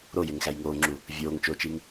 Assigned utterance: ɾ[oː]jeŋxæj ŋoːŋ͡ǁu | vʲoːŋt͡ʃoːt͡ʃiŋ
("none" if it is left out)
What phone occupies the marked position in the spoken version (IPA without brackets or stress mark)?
o